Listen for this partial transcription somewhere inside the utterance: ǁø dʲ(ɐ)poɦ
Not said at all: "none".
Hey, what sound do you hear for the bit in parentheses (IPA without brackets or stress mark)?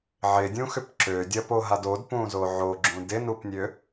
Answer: ɐ